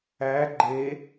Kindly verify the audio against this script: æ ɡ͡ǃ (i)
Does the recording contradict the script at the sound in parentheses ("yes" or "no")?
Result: yes